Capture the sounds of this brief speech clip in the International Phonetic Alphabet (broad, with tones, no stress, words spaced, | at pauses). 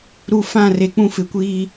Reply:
ɾu˨fã˦˨ re˨k͡pũ˦ fɪ˨kʷiː˦